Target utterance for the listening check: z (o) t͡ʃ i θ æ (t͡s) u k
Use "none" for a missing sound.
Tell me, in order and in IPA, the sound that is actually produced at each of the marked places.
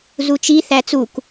u, t͡s

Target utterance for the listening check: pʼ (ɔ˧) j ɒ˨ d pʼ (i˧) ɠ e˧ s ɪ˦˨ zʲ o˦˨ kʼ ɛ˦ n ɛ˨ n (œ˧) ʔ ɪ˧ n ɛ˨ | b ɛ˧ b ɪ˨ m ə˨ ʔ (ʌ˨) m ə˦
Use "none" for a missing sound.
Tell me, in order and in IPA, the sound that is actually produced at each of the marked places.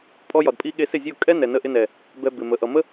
ɔ˧, i˧, ə˧, ʌ˨

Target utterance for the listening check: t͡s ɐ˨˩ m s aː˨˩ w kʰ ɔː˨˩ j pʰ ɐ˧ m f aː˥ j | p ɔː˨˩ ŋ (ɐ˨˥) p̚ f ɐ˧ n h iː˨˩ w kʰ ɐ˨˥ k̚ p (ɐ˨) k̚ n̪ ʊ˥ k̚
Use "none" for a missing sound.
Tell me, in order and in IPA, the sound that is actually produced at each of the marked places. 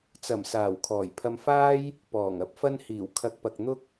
ɐ˧, ɐ˨

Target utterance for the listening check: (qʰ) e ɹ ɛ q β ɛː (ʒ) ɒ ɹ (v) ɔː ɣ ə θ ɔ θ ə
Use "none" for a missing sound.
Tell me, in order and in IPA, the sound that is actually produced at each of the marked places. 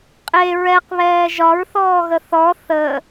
qʼ, ʒ, θ

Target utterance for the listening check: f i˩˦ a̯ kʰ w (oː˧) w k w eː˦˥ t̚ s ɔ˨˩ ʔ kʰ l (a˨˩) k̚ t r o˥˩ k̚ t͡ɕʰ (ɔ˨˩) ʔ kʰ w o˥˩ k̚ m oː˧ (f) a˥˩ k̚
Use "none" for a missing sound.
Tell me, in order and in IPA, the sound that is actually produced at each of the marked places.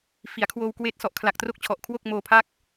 oː˧, a˨˩, ɔ˨˩, pʰ

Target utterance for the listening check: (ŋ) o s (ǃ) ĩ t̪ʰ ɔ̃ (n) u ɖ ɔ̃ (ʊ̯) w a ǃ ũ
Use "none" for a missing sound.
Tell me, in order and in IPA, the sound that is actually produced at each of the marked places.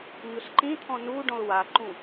ɲ, ǃ, n, ʊ̯

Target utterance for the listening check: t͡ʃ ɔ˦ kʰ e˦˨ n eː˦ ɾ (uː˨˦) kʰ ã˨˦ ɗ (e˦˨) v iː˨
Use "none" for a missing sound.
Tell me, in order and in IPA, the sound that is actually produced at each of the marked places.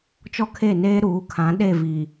uː˨˦, e˦˨

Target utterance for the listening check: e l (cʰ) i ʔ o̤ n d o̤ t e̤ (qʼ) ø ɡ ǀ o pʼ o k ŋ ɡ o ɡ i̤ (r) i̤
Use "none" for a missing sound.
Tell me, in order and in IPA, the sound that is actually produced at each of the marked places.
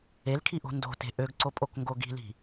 kʰ, ʔ, l

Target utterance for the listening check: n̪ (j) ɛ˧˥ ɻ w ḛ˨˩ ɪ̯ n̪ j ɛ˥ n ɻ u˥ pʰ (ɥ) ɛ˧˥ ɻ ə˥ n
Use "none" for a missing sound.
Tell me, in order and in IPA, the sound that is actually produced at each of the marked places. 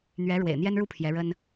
ɥ, j

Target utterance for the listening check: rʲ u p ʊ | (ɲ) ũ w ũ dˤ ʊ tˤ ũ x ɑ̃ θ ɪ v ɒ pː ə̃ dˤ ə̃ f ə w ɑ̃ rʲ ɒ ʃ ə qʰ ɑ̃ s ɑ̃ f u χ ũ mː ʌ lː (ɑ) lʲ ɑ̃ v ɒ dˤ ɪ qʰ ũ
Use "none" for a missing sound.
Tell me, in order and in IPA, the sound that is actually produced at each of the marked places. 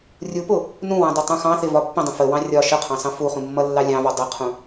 n, ɑ

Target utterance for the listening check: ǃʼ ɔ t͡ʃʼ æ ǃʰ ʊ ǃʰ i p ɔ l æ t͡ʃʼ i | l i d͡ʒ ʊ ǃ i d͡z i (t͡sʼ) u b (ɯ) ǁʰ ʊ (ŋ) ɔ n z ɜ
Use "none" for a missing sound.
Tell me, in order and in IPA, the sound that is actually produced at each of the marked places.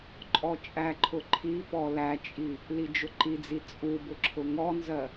t͡sʼ, ʊ, ŋ

